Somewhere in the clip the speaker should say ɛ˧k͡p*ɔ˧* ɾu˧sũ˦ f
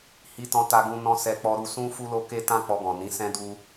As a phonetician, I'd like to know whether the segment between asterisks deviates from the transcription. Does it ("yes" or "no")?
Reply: no